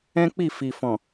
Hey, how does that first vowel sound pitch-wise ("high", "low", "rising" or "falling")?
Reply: high